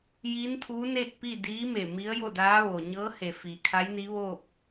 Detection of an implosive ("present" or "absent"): absent